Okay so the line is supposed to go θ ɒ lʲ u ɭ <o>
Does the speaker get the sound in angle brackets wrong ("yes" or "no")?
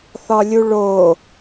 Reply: no